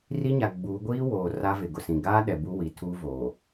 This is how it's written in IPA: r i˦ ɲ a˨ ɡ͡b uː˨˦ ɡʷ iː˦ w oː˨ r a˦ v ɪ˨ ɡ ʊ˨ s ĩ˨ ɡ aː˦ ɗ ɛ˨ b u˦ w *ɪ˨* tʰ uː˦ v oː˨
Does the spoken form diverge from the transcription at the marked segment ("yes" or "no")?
yes